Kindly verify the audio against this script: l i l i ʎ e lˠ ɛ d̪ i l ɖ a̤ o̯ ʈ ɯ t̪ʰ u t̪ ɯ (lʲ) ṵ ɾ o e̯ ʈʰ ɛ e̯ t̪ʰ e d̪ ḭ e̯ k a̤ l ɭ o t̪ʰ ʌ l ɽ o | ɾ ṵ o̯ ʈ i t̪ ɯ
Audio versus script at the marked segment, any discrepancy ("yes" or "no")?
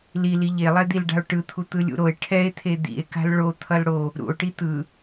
no